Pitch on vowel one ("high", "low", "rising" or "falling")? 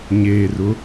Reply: low